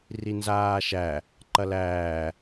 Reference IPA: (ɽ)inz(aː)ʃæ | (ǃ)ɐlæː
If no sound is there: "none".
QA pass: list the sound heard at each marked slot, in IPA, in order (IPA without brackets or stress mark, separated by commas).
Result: r, aː, ǃ